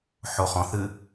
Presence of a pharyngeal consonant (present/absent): present